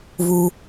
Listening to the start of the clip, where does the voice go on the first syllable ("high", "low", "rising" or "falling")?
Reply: high